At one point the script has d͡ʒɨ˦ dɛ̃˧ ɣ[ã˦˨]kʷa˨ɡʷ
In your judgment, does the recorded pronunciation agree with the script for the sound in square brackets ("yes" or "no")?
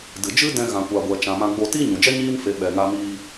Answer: no